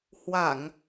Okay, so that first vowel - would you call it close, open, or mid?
open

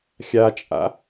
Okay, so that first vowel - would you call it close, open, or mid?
open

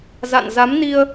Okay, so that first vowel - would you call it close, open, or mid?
open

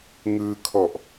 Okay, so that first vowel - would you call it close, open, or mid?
close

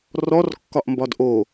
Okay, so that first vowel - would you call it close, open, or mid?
mid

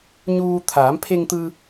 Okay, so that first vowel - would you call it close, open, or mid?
close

